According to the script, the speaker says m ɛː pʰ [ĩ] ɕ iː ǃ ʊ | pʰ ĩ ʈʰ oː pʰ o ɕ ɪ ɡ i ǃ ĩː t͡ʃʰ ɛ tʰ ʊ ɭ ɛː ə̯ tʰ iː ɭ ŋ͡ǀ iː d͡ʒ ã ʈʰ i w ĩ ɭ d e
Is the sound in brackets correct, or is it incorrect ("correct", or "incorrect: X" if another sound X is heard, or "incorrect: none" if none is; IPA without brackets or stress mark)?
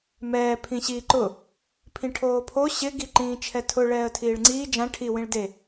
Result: correct